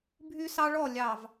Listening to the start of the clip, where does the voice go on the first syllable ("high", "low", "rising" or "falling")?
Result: high